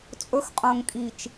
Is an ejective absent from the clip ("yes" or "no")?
no